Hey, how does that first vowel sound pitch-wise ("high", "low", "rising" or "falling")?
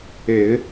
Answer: low